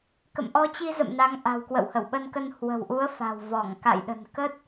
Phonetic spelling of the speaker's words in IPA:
k ə̰˧˨ m ʔ ɔ˧ t͡ɕ i˧ z ə̰˧˨ m n a˨˦ ŋ ʔ a̤˨˩ w k w ə̰˧˨ w h ə˧˩ w ɓ ə˧ n k ə˧ n h w ə̤˨˩ w ʔ u˨˦ ə̯ f a̤˨˩ w v ɔ˧˩ ŋ k a̰˧˨ j ɗ ə̤˨˩ n k ə˦˥ t̚

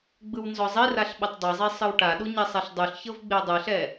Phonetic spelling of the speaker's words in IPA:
ɡ͡b ɯ w n z ɔ zˤ i r a ɬ ɓ ɤ tˤ dˤ ɛ zˤ e sˤ ɯ w ʈ a ɗ u ɲ ɛ sˤ ɛ ɬ dˤ u ɬ ç ɤ v ɡ͡b e dˤ ɯ ɬ ɛ

